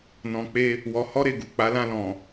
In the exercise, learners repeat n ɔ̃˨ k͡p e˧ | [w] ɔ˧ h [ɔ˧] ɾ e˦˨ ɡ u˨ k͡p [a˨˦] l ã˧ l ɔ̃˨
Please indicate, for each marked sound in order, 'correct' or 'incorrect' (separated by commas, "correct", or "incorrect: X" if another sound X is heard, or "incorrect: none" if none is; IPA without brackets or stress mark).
correct, incorrect: ɔ˦, correct